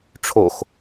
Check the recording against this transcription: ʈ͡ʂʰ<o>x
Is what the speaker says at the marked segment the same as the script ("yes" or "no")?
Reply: yes